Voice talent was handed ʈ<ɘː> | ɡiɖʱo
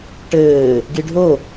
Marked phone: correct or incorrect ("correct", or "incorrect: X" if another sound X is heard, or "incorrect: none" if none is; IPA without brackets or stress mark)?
correct